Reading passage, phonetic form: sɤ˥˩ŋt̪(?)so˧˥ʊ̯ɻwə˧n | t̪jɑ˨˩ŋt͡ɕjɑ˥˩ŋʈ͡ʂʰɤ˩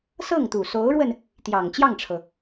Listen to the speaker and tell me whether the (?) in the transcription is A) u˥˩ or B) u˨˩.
B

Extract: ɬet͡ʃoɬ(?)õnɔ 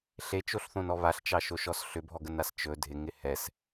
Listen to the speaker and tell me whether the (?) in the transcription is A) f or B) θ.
B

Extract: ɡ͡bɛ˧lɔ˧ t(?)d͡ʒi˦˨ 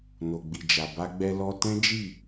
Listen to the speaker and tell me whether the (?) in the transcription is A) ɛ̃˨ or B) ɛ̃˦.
B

